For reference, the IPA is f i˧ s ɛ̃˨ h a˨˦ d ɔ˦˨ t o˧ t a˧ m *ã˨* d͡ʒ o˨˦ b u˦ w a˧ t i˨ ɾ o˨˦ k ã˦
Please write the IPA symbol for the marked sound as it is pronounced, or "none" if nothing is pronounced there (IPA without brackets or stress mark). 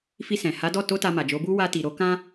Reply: a˨